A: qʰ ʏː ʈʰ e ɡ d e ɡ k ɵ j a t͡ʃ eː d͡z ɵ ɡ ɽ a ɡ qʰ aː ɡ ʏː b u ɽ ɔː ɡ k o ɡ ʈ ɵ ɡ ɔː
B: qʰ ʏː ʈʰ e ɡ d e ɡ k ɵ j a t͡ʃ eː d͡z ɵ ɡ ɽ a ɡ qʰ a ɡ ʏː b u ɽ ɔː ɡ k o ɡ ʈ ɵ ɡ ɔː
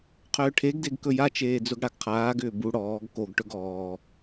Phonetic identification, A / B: A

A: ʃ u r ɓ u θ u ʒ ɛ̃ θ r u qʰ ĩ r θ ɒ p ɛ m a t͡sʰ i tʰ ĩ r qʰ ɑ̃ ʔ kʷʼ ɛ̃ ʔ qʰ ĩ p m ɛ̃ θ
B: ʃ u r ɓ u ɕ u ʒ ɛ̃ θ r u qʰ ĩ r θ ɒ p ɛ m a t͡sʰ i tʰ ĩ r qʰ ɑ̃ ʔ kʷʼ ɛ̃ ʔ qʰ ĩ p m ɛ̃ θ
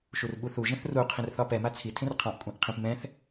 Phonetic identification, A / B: A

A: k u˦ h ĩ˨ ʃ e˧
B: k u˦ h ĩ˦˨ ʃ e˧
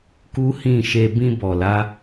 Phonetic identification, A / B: B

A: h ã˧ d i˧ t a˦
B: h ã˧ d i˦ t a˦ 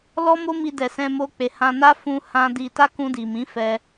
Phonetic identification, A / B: A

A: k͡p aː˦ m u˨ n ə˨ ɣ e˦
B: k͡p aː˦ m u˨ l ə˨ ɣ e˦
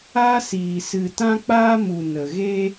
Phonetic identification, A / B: A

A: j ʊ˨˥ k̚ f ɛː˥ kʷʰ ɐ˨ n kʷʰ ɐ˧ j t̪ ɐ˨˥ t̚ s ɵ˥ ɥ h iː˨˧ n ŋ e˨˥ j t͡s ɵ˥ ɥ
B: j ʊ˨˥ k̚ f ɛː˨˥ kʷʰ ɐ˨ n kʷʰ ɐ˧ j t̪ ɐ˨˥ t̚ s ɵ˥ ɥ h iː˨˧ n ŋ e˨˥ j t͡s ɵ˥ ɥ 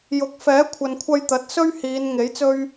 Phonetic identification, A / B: B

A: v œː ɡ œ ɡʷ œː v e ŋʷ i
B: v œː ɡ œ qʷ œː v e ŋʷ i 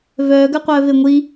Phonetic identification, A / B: B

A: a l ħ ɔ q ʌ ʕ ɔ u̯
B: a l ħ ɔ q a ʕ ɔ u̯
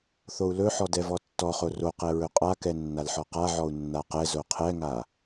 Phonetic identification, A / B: B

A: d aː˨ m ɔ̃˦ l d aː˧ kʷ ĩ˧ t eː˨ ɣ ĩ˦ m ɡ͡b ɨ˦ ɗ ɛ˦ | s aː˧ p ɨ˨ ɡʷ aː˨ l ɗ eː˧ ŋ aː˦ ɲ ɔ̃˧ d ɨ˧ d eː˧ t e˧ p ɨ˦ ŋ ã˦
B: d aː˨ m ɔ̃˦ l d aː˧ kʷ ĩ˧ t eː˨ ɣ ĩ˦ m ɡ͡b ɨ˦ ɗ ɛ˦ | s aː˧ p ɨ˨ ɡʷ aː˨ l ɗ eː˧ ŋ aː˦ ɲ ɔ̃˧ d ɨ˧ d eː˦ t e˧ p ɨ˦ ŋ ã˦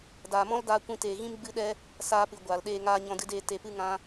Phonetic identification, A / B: A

